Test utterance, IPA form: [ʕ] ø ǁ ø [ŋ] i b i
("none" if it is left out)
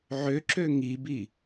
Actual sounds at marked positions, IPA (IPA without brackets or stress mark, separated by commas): ʕ, ŋ